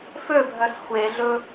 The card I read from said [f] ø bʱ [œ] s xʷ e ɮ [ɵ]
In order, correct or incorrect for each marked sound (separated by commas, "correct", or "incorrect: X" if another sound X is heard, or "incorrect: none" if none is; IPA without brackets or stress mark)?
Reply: correct, correct, correct